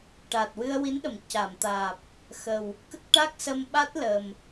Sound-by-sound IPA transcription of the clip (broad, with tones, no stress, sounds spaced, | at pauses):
ʈ a˨˩ t̚ w ɨ˧ ə̯ w i˧˥ n ɗ ə˨˩˨ m c a˨˩˨ m t̪ aː˨˩ p̚ | x ə˨˩ w | k ə˦˥ k̚ ʈ a˦˥ k̚ s ə˧ m ɓ a˦˥ t̚ l ə˨˩ m